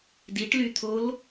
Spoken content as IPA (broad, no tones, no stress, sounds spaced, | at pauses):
d i ʈ l y t̪ʰ o l